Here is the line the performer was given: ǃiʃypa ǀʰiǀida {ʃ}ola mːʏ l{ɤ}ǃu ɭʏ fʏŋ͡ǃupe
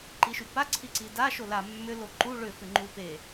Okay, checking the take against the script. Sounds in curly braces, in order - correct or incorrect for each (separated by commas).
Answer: correct, incorrect